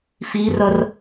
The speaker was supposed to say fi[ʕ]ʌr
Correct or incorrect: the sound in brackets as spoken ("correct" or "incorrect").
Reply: incorrect